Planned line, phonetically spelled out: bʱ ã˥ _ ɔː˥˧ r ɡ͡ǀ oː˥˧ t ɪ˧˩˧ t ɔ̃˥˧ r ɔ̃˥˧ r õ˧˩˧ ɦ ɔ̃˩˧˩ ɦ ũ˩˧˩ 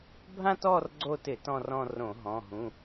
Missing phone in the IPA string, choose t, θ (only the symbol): t